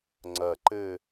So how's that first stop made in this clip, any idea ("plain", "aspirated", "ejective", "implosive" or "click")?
click